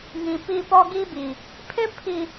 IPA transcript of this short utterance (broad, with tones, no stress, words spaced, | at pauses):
ŋĩ˨pi˦˨pɔ˦ɡi˦ bi˨ | pʰɪ˦pʰi˨